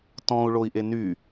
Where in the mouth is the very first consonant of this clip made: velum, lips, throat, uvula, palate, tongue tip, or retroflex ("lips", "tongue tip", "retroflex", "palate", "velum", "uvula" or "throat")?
tongue tip